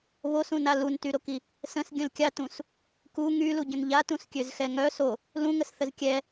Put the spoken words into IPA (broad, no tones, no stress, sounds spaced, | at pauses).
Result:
β o s ũ n a l u n t y ɾ o k i | s ə̃ s ɡʲ ə̃ l kʲ a t ũ s | k u ŋ y l u ɟ ə̃ n ʎ a t ũ s kʲ ø z x ɛ ŋ œ s o | l ũ ŋ ə s θ ə z kʲ ɛ